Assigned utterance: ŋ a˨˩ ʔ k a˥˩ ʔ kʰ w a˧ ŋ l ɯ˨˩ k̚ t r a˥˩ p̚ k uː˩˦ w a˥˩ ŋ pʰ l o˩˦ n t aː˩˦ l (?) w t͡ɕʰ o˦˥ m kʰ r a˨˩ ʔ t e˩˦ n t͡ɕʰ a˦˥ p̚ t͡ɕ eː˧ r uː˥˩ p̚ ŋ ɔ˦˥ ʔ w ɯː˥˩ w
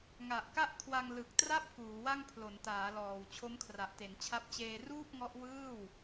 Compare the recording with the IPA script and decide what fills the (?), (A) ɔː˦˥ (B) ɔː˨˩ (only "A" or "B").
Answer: B